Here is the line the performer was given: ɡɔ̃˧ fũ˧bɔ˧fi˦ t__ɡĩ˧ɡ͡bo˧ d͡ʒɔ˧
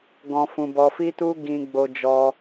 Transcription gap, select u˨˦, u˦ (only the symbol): u˦